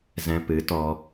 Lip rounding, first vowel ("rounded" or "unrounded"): unrounded